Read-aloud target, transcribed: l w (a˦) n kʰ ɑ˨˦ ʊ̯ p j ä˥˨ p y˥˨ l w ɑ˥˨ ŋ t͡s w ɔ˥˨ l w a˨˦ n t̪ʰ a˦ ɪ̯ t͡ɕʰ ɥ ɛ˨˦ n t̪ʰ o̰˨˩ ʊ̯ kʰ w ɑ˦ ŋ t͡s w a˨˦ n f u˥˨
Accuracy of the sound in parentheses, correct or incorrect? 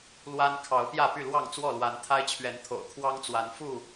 correct